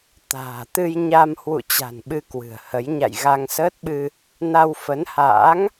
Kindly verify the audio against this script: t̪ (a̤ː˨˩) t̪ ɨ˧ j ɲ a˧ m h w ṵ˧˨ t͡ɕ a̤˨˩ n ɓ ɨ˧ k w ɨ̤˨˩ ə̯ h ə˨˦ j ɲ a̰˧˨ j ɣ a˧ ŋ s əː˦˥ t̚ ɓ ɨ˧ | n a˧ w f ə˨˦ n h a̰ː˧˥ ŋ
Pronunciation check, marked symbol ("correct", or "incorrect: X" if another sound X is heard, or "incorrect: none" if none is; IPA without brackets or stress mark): correct